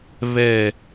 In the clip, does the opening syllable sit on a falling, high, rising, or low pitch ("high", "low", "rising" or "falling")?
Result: falling